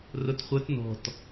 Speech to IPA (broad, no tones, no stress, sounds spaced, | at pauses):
r ʊ t χʷ œ t n ɔ̤ t